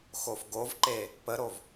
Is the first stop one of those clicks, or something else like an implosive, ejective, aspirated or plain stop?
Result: plain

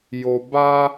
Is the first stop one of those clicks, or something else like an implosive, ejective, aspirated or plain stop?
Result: plain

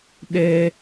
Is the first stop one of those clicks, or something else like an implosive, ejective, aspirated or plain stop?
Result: implosive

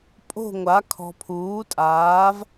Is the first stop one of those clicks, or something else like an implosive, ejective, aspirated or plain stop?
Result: ejective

